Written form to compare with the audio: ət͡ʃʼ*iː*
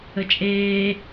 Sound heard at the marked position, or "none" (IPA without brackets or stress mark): eː